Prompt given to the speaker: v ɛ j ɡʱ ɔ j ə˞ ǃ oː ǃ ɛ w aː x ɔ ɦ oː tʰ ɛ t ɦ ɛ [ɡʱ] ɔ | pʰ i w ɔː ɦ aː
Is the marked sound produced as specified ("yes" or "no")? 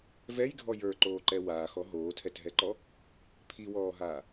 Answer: no